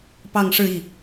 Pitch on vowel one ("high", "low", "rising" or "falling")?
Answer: falling